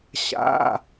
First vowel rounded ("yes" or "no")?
no